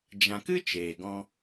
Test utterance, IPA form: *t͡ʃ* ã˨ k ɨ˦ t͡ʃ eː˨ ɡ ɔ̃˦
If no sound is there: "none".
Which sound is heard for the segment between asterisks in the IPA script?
d͡ʒ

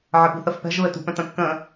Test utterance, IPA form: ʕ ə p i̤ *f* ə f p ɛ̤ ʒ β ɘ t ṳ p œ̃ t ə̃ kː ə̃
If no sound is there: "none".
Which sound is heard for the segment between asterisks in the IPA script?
θ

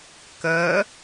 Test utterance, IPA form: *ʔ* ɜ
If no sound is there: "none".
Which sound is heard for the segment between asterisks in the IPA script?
k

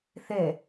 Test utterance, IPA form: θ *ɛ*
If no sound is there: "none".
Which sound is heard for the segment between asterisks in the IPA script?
ɛ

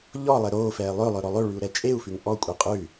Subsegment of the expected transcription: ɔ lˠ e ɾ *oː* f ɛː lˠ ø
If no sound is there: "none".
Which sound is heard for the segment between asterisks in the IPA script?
oː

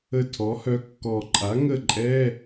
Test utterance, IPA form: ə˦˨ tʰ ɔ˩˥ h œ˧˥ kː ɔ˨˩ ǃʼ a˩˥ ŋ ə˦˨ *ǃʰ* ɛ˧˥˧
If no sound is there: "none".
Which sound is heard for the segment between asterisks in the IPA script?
ǃʼ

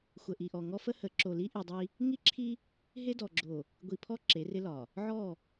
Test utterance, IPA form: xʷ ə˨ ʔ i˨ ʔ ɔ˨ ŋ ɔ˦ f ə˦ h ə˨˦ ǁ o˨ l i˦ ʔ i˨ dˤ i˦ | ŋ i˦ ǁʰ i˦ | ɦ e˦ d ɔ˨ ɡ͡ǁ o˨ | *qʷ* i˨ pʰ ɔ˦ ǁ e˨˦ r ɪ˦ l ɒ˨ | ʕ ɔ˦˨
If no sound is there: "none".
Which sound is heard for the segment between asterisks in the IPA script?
ɡʷ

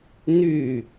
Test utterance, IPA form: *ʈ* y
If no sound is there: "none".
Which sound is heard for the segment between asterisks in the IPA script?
n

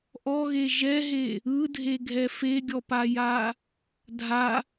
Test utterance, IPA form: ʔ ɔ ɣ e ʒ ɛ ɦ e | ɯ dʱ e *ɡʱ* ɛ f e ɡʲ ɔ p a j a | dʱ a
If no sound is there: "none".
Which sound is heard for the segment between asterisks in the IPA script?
ɡʱ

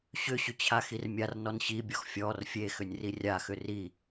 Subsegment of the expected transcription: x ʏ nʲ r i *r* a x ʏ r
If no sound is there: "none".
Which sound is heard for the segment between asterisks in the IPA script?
rʲ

